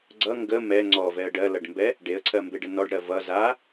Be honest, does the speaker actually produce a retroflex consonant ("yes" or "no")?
yes